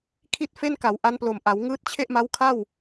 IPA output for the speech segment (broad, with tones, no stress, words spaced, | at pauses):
kʰi˥˩t̚fe˥˩nka˩˦w ʔa˦˥nplo˨˩mʔa˩˦w ŋɯː˦˥t̚t͡ɕʰe˥˩ʔma˦˥w kʰa˥˩w